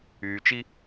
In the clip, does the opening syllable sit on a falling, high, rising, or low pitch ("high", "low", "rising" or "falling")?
low